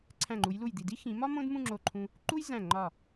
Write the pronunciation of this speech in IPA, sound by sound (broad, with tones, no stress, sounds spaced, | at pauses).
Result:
ǀʰ æ̃˧˩ ŋ͡ǃ u˩˧ j l u˧˩ j d̪ i˧˩ d i˥ x ĩ˩˧ m ɒ˥ m õ˥ d m ũ˥˧ ŋ͡ǁ o˧˩ ǃʰ ũ˧ | ǃ u˥ j z æ̃˧˩ ŋ͡ǃ ɒ˧˩